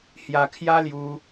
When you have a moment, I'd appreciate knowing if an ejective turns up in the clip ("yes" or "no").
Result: no